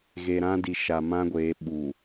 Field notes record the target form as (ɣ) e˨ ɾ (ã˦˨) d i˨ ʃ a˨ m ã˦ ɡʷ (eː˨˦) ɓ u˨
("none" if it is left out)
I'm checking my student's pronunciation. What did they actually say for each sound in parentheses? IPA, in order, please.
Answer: ɣ, ã˦, eː˨˦

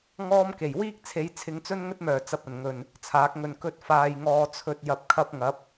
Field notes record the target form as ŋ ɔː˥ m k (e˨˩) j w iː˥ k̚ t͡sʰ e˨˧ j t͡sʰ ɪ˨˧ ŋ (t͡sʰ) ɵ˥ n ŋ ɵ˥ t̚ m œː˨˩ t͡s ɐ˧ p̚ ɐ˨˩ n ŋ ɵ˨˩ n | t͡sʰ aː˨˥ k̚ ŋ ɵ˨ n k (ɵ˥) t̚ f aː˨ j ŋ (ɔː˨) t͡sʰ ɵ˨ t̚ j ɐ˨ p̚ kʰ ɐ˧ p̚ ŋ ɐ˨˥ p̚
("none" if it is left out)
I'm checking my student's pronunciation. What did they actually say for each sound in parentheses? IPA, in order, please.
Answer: e˨˩, t͡s, ɵ˧, ɔː˨

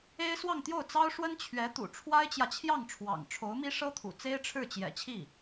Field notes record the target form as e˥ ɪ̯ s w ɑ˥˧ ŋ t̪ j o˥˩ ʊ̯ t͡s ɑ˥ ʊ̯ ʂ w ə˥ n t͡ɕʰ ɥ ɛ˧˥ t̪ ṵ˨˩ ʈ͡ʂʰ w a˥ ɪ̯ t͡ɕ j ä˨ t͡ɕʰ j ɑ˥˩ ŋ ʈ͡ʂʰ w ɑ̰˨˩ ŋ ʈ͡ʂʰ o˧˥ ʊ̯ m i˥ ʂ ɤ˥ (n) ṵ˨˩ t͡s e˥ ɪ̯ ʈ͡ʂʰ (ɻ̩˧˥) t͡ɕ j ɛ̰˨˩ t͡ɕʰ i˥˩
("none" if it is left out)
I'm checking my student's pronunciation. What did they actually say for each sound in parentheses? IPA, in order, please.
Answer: t̪ʰ, ɻ̩˥˩

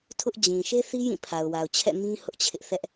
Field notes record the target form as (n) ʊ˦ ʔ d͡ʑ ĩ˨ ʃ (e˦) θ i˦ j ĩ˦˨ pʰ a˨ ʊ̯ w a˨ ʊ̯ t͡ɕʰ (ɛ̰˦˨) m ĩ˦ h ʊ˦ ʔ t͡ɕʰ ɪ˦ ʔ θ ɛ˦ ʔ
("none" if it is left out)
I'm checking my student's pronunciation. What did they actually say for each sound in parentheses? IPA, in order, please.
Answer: tʰ, e˦, ɛ̰˦˨

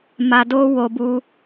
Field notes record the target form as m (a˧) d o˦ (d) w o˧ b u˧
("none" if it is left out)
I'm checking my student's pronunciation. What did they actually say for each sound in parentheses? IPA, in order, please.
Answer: a˧, none

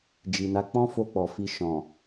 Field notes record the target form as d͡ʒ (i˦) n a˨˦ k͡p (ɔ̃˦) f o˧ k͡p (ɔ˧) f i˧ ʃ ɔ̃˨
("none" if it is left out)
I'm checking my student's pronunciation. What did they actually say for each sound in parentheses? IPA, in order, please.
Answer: i˨, ɔ̃˦, ɔ˨

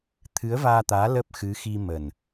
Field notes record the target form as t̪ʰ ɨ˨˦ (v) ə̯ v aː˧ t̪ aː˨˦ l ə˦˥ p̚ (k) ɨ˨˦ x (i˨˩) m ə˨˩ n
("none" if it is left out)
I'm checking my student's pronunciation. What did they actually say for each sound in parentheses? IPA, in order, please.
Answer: none, x, i˧

